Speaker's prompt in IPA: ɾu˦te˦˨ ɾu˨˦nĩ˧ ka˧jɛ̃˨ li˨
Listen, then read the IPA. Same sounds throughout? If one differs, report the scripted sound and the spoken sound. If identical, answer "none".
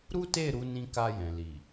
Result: none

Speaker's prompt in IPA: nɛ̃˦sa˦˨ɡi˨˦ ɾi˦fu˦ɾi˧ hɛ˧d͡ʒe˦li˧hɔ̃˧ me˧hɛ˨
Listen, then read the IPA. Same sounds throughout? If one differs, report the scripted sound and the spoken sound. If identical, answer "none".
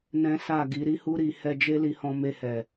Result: f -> h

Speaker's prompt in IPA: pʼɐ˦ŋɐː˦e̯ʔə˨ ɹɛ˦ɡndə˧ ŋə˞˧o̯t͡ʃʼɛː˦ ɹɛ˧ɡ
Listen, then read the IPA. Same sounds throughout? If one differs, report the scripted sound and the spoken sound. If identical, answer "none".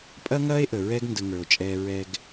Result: none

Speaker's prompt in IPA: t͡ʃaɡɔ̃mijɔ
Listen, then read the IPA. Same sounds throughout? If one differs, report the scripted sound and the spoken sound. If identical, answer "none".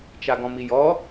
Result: none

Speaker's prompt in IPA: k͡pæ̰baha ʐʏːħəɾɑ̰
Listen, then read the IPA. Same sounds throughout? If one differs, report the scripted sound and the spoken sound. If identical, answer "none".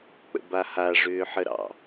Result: æ̰ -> ə̰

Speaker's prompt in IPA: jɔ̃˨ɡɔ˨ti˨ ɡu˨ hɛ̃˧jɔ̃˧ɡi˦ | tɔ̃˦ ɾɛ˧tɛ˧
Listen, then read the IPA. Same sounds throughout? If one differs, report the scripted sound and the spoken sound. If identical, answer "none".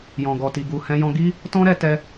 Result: none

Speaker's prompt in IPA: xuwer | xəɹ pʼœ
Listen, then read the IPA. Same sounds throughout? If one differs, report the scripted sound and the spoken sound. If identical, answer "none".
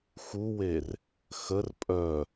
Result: ɹ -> r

